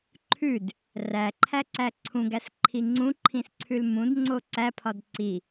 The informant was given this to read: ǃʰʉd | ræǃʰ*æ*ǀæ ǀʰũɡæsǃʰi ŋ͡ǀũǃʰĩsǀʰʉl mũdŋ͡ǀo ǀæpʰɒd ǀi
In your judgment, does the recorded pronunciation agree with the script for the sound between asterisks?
yes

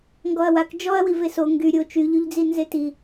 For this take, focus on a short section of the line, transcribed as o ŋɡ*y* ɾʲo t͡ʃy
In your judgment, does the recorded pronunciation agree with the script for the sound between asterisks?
yes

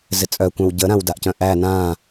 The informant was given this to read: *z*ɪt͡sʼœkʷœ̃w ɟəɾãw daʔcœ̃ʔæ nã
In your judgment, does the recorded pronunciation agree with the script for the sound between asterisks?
yes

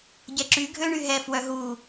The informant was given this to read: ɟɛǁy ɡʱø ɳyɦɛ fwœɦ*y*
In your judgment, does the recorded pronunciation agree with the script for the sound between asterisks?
no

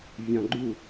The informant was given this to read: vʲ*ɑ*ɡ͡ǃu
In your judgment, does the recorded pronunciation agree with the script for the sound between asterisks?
no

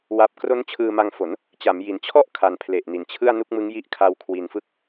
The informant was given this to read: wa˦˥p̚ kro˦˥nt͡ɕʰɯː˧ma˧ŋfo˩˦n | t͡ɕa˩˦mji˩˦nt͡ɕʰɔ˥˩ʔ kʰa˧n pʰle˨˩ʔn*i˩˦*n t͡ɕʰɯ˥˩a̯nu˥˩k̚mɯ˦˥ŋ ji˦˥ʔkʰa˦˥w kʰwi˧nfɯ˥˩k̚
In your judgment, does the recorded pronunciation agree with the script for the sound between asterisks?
yes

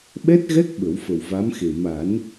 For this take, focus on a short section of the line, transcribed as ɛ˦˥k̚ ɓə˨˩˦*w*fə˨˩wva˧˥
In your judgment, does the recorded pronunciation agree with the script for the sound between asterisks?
yes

